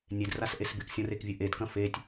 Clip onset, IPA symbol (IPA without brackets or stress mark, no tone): nʲ